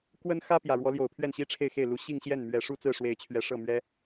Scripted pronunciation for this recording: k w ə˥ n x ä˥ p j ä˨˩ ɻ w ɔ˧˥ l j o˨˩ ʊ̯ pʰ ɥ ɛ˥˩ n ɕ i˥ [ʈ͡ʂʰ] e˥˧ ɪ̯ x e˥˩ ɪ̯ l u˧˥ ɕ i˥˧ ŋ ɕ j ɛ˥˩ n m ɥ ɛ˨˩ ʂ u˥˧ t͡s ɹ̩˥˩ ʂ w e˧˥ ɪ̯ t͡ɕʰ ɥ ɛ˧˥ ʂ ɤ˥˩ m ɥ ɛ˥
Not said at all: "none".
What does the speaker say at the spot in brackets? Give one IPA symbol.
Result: ʈ͡ʂʰ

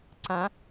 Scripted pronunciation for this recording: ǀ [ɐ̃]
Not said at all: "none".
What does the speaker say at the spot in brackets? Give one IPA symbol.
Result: ã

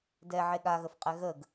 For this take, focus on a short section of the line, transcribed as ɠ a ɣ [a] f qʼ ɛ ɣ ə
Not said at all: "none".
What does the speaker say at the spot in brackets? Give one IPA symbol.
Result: ə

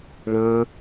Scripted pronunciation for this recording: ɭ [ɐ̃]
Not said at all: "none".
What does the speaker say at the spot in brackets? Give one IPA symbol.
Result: ɐ̃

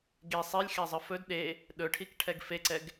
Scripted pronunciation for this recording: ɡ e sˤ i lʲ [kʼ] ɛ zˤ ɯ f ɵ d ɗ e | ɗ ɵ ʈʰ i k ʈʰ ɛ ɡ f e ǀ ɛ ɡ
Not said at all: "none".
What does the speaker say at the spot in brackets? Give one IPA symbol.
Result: x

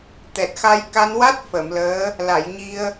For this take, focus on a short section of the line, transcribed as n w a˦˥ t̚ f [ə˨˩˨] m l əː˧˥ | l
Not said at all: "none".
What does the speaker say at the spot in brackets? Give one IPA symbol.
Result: ə˨˩˨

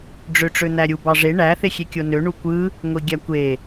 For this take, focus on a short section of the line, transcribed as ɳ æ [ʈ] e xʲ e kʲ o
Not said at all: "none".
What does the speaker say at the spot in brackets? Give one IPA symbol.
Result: θ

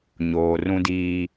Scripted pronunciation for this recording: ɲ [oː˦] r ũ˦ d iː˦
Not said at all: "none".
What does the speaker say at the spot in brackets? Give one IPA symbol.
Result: oː˨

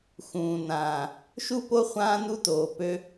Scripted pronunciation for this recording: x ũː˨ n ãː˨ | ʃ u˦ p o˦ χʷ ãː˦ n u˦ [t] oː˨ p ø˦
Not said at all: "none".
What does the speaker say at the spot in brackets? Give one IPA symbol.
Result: t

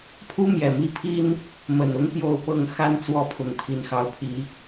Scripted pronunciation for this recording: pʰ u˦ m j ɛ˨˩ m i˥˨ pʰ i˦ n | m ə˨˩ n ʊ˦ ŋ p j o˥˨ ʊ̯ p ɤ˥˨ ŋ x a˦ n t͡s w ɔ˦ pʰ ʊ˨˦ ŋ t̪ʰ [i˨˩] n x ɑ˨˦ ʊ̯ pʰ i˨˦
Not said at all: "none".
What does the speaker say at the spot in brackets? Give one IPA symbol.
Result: i˨˩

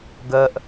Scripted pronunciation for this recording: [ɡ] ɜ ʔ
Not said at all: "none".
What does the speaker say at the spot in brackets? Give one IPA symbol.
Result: ɡ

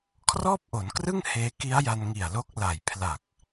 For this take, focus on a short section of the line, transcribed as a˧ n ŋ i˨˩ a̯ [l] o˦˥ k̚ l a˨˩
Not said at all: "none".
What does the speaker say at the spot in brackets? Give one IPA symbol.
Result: l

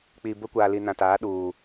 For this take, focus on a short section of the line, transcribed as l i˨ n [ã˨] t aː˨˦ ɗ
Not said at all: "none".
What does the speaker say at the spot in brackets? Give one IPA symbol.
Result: ã˨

